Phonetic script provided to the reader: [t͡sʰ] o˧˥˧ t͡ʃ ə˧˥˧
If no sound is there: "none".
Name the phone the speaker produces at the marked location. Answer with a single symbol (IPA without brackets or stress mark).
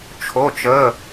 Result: t͡ʃʰ